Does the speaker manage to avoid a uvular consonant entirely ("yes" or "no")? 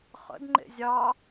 no